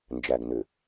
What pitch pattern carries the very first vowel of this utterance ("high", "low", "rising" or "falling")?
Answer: low